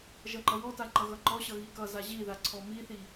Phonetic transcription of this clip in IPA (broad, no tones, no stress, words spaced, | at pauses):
ʒʌŋ͡ǃʌwɔta ŋ͡ǃʌɣʌŋ͡ǃɔɕʌ ɣikʌza ʑiða ǀʰɔmiθi